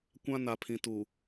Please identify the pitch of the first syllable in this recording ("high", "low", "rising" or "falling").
high